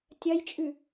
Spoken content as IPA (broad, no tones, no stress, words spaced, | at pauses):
tʲɐjt͡ʃʼʉ